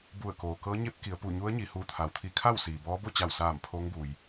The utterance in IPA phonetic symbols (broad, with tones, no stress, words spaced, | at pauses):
bu˧˩ə̯koː˩kɤː˧˥ ɲe˧˥p̚ki˩˧ə̯pu˧˩ ɲu˧˥ə̯ɲi˩ huː˧˩t̪ʰa˩˧wt̪ʰi˧˩kʰa˥˨w siː˩bɔː˧˥ bo˥˨t͡ɕa˧˩wsaː˧˩m pʰo˧˥ŋbuː˩j